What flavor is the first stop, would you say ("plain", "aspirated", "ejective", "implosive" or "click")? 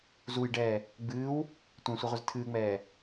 plain